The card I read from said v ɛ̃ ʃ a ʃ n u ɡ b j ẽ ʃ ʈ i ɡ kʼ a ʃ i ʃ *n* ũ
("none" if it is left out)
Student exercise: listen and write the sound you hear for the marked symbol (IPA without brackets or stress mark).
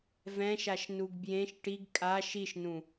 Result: n